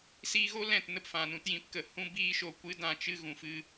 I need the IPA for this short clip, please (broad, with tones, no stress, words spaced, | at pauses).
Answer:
siː˧ɣo˦ lɛ̃˦˨t nə˦pfã˨nũ˧tjĩ˨˦p kə˨ hũ˦biː˦ʃo˧ kʷɨ˨˦dã˨t͡ʃɨ˧ ɣũ˨fɨ˧